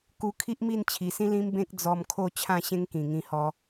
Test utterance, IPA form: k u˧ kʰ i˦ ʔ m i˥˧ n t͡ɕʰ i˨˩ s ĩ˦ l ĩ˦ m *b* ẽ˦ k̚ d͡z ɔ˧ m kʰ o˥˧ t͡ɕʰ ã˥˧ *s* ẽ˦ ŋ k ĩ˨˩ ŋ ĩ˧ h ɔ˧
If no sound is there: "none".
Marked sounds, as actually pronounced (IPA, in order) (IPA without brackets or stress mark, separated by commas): b, ɕ